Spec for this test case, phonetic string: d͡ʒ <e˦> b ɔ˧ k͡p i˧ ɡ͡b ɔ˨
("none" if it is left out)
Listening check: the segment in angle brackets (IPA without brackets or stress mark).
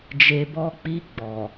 e˨